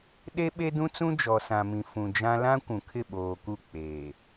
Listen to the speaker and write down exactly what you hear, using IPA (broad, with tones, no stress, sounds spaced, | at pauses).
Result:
ɗ e˦ ɓ e˦ d ũ˦ t͡s ũ˦ d͡ʒ ɔ˨ s ã˨ m ĩ˨ f ũ˨ d͡ʒ ã˦ l ã˦ kʷ ũ˨ kʰ ɪ˦˨ ɓ oː˨ k u˦˨ k͡p eː˨